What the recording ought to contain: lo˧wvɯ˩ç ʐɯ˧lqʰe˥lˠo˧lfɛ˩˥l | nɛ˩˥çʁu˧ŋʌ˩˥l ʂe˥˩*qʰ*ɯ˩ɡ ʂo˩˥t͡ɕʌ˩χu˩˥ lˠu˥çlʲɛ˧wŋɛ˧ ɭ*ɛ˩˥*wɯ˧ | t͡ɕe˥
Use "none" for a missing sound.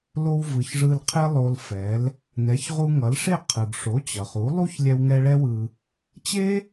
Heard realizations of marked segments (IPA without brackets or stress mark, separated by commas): qʰ, ɛ˥